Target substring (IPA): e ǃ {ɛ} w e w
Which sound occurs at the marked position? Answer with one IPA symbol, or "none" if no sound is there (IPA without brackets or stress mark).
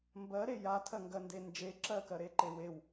e